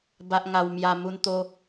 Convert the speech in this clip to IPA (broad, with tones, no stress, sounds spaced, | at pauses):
b a˨ ʔ ŋ a˨˩ w m j a˨˩ m u˧ n t̪ o˦